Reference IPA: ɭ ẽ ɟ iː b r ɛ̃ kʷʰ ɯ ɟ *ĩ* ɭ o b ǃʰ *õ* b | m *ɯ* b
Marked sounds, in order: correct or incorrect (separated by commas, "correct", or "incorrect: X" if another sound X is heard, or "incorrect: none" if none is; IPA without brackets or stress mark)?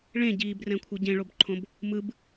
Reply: incorrect: ẽ, correct, correct